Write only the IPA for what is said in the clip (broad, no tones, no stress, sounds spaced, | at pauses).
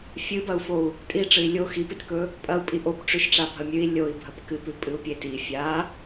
fʲ ɨ b ɐ u̯ f o u̯ | tʼ i ʈ͡ʂ ɨ i̯ lʲ o x i p i t k ɵ | pʼ ɐ u̯ pʼ i ʔ o p ʈ͡ʂ ʉ ʃ ʈ͡ʂ a bʱ ɐ mʲ ʉ i̯ lʲ o i̯ bʱ ɐ p k ɨ p ʉ pʼ ɨ u̯ pʲ e t i fʲ a